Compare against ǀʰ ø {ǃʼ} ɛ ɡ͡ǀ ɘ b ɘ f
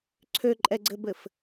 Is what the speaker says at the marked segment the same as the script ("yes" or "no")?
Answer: yes